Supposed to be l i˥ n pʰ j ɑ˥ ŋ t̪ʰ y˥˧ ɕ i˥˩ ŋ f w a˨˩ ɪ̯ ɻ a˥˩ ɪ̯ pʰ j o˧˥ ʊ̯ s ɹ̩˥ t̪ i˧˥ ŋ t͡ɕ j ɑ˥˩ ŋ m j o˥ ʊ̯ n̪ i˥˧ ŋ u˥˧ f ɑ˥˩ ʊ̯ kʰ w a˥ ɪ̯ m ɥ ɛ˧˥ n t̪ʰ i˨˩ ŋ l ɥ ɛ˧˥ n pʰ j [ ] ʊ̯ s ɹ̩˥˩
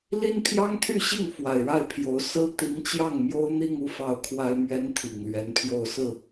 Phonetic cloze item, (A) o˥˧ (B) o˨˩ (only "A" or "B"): A